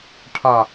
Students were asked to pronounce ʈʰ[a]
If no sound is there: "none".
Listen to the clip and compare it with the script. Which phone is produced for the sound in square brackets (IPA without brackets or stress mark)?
a